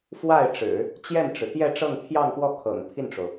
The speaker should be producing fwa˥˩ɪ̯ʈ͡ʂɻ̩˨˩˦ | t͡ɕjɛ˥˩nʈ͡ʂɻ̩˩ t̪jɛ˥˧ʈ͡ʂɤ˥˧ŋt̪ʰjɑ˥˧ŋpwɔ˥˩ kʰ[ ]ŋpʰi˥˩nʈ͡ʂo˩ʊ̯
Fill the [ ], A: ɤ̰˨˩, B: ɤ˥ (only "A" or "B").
A